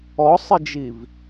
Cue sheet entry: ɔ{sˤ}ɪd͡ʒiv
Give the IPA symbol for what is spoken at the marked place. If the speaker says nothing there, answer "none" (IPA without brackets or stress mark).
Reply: sˤ